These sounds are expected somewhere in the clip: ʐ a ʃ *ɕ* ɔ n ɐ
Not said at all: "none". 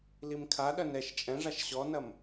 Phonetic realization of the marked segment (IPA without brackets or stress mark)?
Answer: ɕ